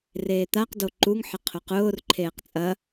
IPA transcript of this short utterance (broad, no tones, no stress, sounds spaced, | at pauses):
r eː t̪ a q d o ǃ u ŋ ħ ɪ qʰ ʊ q ʊː r ǃʰ eː q t͡sʼ ɐ